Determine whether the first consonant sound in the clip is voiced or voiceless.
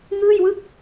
voiced